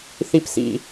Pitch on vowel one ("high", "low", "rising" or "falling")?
high